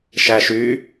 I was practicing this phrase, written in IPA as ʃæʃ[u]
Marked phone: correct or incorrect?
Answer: incorrect